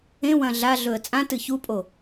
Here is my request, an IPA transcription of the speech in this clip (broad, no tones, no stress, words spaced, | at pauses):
ẽwɐ̃ ɮa ɮɵə̯t͡sʼãtɨ çupʼo